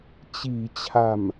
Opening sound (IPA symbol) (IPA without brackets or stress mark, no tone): t͡ɕ